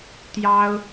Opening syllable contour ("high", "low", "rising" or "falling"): high